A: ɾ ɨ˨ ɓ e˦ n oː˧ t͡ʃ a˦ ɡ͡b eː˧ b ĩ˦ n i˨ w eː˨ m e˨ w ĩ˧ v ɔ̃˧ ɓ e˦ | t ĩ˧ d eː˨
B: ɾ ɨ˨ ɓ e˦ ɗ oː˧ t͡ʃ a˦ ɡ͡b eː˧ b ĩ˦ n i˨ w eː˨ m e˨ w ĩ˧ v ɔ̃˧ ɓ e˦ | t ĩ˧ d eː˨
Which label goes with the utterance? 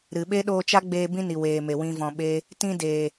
B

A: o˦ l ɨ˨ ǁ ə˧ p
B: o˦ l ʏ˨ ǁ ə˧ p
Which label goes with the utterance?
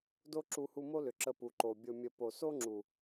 B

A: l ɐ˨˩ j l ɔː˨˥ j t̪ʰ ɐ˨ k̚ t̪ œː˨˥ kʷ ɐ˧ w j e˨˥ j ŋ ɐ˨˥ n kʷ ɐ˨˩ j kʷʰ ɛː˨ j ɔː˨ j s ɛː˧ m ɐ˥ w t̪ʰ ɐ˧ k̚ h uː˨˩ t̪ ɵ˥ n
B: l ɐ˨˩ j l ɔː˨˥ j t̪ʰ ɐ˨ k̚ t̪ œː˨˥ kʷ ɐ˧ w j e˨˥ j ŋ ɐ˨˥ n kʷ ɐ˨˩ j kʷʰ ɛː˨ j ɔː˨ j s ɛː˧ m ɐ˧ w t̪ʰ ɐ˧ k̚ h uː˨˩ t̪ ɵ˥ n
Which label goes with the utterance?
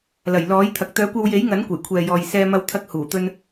B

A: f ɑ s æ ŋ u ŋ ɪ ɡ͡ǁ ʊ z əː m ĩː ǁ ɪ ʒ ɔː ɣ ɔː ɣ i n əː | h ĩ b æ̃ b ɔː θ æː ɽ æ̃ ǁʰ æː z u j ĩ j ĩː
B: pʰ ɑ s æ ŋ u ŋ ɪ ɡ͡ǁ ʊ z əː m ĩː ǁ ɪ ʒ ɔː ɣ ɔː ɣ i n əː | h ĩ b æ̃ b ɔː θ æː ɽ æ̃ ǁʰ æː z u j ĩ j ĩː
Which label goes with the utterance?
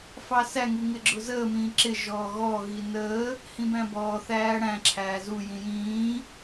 A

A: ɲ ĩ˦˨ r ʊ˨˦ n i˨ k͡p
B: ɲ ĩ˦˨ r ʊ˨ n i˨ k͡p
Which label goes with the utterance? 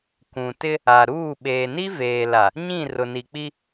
B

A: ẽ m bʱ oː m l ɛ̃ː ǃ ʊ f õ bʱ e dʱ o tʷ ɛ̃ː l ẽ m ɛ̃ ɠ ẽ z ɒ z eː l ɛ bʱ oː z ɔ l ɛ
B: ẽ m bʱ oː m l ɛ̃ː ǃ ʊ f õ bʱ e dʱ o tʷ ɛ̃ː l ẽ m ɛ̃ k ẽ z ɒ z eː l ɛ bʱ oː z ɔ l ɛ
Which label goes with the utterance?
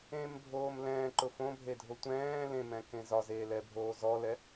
B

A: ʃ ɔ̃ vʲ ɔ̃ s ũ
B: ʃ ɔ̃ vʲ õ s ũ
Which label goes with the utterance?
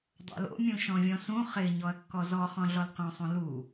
A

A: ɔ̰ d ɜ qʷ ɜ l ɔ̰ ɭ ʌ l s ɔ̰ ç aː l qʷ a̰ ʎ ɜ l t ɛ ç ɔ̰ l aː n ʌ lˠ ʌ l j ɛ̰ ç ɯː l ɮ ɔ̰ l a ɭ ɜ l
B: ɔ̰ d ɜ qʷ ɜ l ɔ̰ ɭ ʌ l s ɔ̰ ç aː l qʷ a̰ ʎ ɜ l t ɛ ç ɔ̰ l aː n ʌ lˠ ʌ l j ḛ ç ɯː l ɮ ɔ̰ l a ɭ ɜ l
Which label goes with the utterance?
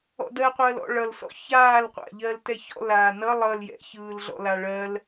A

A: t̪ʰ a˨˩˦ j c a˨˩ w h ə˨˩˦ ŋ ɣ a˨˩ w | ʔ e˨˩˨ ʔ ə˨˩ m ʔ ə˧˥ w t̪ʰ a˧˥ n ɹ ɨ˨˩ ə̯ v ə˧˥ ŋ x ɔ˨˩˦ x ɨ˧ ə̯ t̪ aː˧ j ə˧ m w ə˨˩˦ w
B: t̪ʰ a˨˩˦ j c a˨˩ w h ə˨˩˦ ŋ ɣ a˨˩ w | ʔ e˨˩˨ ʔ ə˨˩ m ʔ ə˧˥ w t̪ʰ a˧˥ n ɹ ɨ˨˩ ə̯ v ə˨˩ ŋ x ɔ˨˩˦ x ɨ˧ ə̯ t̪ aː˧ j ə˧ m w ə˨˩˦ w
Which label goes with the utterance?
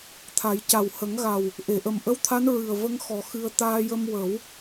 A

